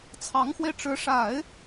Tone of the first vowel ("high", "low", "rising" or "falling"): rising